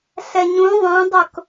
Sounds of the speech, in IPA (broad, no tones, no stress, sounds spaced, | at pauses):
ɬ ɛ ɲ ũ ðˤ œ̃ dˤ ʊ k